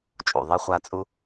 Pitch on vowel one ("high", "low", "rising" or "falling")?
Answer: low